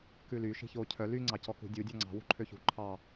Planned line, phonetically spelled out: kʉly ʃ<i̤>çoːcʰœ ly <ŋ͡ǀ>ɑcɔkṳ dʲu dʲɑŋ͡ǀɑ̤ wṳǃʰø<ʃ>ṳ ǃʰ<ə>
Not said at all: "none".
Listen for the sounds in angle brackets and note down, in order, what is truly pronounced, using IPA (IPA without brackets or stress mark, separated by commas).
i̤, ŋ͡ǀ, ç, ɑ